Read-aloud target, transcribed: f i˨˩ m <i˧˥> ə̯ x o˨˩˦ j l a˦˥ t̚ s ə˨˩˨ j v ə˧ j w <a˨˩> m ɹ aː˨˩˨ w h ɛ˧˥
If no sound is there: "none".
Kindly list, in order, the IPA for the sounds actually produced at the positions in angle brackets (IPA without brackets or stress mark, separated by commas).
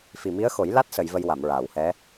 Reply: i˧˥, a˨˩˨